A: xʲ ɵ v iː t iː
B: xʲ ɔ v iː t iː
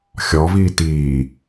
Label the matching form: B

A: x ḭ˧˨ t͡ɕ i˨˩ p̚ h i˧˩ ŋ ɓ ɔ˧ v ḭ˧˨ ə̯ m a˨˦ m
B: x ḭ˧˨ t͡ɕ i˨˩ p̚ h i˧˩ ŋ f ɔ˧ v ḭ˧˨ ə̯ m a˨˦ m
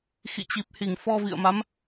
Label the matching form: B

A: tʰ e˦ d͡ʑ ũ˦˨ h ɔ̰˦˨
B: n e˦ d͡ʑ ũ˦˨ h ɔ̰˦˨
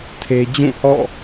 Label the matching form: A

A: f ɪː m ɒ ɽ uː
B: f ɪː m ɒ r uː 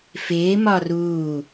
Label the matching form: B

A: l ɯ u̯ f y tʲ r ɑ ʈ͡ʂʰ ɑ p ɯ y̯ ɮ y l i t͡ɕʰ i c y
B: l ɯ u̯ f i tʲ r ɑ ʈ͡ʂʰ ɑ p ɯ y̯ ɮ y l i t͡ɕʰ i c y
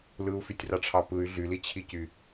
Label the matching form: A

